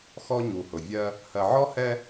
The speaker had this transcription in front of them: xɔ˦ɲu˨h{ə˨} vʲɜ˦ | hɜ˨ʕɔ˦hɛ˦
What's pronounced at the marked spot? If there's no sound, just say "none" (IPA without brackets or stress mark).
ʊ˨